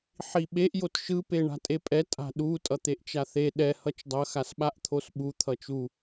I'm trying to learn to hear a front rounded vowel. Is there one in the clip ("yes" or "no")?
no